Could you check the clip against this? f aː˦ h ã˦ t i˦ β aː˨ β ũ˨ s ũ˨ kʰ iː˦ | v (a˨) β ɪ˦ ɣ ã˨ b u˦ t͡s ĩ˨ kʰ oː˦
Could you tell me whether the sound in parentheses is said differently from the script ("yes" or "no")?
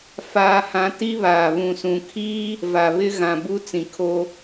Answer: no